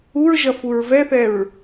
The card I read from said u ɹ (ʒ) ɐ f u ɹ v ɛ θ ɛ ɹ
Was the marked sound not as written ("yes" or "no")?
no